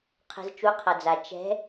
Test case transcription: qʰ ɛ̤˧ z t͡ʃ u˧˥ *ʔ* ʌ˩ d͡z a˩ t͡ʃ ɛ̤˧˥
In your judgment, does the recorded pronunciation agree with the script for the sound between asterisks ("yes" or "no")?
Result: no